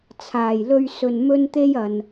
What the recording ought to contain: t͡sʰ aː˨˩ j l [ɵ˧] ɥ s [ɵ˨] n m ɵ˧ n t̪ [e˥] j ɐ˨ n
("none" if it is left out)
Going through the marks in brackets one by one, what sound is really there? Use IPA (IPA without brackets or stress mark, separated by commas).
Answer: ɵ˧, ɵ˨, e˧